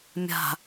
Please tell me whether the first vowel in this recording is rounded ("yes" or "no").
no